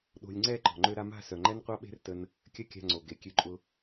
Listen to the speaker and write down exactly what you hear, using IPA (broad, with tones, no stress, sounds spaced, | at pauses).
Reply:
ɗ o̤˧ lʲ ŋ͡ǀ ɛ˦˨ ǃ ɔ̤˨ ŋ͡ǃ ø˧ ɾ a˧ m a̤˦˨ s œ˨ ŋ͡ǃ ɛ˦ n qʷ a˦ ɓ e̤˦ r t ə˦ n | kʲ ɐ˦ kʲ a̤˧ ŋ͡ǀ o˨ ɡ e˨ kʲ ø˧ ǃʼ ʊ˧